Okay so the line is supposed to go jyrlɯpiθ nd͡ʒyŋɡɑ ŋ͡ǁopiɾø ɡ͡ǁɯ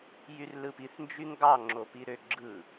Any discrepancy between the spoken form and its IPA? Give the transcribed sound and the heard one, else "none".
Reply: none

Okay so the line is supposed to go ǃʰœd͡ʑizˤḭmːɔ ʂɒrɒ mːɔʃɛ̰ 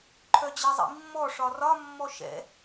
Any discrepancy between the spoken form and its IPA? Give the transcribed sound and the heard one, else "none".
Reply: none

